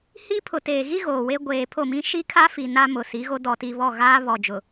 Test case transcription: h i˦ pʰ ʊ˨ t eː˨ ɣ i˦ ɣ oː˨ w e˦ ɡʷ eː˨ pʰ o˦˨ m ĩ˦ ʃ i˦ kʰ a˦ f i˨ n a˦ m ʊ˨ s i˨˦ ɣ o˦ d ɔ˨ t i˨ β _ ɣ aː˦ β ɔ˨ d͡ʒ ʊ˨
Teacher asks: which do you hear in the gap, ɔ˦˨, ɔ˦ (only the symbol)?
ɔ˦˨